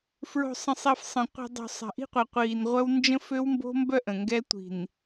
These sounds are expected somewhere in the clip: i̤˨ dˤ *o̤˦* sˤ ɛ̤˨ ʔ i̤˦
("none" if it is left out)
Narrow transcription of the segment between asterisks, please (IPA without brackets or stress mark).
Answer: o̤˨